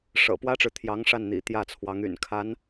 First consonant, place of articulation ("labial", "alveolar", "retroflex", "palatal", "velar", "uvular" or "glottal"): retroflex